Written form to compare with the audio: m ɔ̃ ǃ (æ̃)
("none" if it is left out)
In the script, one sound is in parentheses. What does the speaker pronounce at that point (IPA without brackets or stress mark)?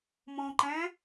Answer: æ̃